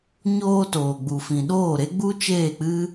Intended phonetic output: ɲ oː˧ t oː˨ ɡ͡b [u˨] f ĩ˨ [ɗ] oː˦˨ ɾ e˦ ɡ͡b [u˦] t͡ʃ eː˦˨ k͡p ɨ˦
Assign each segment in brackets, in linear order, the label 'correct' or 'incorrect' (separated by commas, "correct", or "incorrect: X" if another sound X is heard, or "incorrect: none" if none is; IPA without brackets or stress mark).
correct, correct, correct